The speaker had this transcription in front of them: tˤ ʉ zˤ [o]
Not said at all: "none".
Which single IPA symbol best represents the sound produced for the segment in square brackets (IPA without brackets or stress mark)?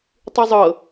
ɤ